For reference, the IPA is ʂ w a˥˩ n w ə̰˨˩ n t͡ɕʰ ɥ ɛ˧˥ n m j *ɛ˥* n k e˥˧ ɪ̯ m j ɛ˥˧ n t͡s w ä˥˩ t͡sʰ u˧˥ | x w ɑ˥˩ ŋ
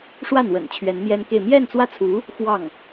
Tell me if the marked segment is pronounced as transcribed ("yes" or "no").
yes